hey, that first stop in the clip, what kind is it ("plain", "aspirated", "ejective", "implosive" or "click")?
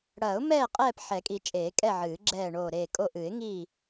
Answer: ejective